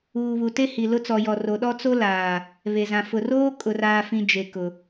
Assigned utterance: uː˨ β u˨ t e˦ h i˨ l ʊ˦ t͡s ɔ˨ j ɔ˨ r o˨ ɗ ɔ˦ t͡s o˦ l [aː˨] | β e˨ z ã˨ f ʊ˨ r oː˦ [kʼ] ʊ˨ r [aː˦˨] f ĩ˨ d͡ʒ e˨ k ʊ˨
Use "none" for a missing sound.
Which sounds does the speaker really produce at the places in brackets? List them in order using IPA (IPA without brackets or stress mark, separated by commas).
aː˨, kʼ, aː˨